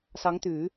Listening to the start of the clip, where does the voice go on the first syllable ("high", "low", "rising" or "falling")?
rising